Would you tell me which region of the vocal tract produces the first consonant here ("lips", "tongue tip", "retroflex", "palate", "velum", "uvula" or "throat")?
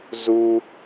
tongue tip